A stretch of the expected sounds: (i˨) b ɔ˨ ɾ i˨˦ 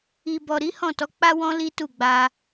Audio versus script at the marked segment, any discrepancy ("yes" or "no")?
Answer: no